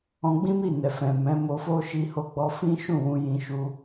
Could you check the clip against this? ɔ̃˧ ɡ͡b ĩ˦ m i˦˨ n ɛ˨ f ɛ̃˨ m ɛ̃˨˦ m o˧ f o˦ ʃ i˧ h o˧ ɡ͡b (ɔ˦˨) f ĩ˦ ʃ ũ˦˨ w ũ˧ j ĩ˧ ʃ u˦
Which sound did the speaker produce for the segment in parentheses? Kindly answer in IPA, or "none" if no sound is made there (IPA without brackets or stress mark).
ɔ˧